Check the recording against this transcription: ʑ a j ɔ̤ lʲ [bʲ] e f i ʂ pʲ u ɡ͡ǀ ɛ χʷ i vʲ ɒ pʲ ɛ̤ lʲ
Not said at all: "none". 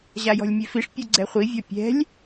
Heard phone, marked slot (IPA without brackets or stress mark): mʲ